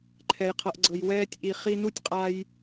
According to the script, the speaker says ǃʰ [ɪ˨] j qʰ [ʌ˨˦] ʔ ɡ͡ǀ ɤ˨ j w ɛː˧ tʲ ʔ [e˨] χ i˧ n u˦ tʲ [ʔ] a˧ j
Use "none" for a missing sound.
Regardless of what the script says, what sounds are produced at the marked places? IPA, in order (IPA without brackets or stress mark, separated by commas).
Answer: ɛ˨, ʌ˨, i˨, qʼ